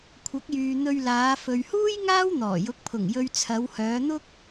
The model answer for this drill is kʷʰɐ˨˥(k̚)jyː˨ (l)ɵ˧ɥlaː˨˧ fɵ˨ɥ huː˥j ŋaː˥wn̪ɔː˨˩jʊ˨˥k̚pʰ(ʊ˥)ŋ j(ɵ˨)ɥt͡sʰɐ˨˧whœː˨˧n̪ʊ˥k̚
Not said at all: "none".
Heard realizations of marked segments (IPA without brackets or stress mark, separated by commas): k̚, n̪, ʊ˨˩, ɵ˧